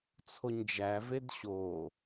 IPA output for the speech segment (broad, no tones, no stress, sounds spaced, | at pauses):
t͡sʰ o ɲ d͡ʒ æ v e d ɕ o